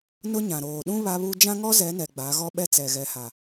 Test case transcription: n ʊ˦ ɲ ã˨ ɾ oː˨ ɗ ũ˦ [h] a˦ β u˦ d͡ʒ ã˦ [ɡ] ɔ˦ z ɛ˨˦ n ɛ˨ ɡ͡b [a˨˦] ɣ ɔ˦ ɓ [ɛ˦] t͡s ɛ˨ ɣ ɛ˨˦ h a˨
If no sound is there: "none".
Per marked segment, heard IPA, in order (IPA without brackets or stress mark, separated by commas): β, ŋ, a˨˦, ɛ˦